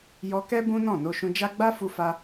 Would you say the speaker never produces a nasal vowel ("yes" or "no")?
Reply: no